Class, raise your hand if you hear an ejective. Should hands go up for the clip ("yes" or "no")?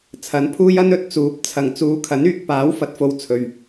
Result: no